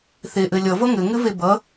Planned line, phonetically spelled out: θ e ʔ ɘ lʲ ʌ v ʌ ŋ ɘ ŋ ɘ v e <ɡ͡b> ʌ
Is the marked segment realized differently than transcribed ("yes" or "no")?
yes